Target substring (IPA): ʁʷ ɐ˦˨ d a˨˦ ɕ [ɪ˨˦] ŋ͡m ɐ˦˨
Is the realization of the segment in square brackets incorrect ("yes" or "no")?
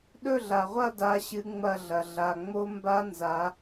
yes